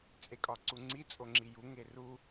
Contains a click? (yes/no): yes